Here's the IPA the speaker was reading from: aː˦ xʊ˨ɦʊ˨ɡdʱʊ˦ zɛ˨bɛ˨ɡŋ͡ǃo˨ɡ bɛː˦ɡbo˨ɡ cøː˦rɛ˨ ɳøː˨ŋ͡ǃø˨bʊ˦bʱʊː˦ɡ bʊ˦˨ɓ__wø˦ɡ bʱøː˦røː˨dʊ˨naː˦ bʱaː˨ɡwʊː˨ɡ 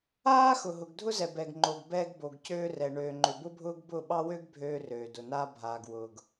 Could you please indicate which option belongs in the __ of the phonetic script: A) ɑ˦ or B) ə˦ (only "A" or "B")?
A